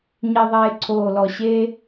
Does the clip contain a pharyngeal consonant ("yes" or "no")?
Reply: no